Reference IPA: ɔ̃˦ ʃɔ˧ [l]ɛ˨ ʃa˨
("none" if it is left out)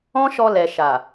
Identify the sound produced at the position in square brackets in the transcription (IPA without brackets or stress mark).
l